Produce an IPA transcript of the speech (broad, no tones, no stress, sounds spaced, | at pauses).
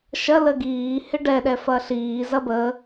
ʃ ɐ l ə ɡ iː h ɪ ɖ ɛ ɗ ɛ f ɐ ɬ iː z ɐ b ə